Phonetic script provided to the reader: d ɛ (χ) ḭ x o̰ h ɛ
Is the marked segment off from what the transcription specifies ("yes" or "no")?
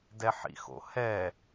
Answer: yes